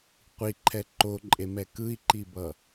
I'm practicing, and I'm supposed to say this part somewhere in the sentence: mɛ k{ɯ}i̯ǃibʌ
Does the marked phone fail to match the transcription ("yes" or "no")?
no